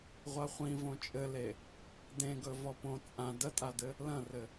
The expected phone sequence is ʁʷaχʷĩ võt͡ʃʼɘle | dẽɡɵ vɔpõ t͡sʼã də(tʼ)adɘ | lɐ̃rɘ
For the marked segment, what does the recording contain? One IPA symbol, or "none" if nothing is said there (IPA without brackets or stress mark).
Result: tʼ